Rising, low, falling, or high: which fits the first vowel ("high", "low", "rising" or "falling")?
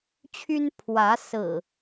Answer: high